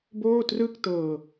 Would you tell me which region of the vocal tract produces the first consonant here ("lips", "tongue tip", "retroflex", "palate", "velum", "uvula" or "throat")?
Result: lips